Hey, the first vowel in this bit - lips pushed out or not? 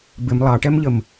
no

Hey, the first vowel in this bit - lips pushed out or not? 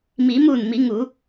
no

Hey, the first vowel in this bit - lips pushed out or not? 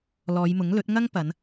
yes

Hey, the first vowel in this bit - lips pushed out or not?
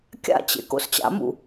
no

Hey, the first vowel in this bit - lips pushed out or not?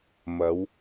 no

